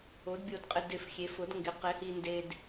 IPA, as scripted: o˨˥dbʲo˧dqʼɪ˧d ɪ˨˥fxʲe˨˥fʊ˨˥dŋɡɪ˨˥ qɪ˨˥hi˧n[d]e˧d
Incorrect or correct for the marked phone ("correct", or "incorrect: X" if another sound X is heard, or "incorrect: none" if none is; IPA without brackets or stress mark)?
correct